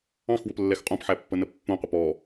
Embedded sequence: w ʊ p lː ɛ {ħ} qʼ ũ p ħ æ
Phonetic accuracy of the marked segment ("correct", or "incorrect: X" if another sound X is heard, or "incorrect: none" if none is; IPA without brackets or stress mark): incorrect: x